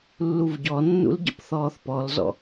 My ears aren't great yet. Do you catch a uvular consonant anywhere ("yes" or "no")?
no